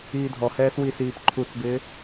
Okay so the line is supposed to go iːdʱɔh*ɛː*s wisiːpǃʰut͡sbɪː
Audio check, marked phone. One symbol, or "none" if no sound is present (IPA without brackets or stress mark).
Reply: ɛː